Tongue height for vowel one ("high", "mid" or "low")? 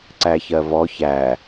low